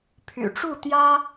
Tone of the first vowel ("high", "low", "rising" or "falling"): low